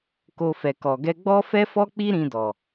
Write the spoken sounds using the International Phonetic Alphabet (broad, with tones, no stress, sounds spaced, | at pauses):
k o˧ f ɛ˨ k ɔ˨ ɡ ɛ˧ ɡ͡b ɔ˦ f ɛ˦ f ɔ˦ k͡p i˦ ɾ ĩ˧ d ɔ˨